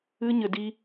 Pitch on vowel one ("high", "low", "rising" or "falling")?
high